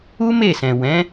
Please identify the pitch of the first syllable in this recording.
high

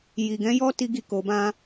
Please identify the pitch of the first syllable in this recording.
low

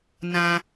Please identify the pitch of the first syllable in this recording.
low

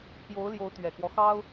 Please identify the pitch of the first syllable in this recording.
rising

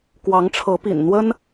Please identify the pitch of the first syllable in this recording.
rising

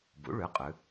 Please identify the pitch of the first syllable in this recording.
rising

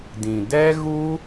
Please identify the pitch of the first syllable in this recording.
low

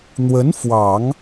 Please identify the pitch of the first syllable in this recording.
rising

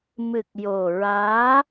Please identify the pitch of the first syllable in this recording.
low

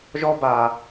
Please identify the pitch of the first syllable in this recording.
high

